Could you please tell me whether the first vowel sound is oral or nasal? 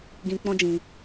nasal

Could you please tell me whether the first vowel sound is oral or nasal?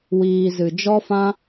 oral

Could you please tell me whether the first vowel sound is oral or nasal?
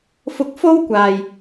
oral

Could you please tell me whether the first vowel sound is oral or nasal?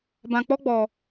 nasal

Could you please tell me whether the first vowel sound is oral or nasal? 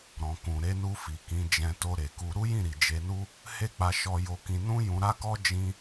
nasal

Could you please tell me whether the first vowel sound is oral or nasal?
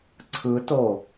oral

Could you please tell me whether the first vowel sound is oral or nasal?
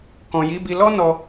nasal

